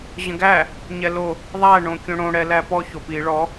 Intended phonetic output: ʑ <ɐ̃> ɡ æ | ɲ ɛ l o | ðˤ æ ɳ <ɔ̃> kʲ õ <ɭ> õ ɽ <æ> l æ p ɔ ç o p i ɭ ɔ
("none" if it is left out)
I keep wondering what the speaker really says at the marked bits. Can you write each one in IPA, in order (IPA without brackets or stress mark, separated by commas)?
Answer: ə̃, õ, ɽ, ɛ